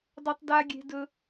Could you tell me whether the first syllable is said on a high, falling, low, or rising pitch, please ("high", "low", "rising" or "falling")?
low